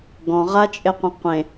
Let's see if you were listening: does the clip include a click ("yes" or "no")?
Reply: no